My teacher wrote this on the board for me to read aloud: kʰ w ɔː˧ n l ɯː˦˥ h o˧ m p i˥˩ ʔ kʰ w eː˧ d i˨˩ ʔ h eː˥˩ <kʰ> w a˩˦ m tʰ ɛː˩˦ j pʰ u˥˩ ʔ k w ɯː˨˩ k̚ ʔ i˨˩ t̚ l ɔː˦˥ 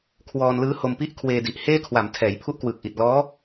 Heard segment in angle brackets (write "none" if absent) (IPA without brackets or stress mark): kʰ